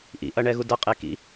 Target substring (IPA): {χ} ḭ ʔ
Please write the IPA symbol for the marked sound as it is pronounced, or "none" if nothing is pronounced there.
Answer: ʔ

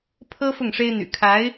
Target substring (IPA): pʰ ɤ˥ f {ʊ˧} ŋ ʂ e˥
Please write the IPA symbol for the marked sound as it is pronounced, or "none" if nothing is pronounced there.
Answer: ʊ˥˩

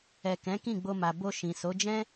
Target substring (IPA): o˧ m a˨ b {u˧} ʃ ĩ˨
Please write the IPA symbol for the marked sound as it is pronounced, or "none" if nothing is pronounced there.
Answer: o˧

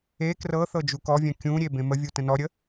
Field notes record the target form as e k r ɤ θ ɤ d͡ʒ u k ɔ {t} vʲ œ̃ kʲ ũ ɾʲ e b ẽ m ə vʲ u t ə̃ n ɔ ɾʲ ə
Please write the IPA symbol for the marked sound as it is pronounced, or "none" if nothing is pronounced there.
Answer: none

